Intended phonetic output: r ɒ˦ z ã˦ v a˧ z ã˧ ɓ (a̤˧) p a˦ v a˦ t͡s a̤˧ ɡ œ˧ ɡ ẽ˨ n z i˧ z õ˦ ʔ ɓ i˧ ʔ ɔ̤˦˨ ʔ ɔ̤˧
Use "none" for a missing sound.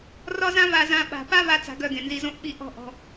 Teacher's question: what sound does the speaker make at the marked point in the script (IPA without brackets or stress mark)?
a̤˨